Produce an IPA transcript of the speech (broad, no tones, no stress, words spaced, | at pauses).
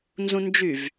nzũnd͡ʒyv